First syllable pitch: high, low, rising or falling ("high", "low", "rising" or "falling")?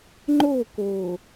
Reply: falling